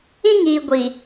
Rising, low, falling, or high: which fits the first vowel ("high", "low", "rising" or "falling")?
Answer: high